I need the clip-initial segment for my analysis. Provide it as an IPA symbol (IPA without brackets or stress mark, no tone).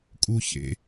kʼ